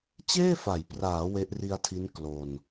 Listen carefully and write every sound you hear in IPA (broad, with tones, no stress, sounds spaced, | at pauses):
t͡ɕ eː˥˩ f a˩˦ j p r aː˩˦ w e˦˥ ʔ r i˧ a̯ tʰ i˦˥ n k l o˧ n